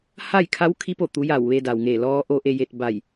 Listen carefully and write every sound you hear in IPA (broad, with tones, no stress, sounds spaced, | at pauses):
h a˥˨ j kʰ a˧˥ w kʰ i˧˥ p o˧˩ t̪ u˩˧ j a˧˩ w ʋ e˧ d a˩ w ŋ e˧˩ l ɔː˧ ʔ o˧ ʔ e˧ j e˧ t̚ b a˧˩ j